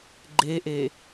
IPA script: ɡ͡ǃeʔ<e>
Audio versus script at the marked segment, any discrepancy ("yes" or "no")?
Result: no